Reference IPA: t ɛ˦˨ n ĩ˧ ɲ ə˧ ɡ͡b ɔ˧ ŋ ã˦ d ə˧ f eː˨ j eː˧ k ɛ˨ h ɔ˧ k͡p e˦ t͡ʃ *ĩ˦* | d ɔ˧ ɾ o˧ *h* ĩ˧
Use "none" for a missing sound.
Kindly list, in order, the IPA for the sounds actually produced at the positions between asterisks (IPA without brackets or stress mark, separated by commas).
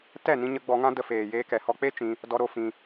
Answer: ĩ˧, f